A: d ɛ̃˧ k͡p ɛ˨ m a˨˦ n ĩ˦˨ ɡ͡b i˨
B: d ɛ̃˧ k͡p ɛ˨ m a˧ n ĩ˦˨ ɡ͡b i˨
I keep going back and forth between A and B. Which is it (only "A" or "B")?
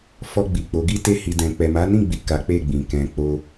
A